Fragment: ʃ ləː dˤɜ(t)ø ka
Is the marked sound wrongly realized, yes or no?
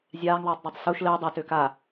no